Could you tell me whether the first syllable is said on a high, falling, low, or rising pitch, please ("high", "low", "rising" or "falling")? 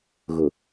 low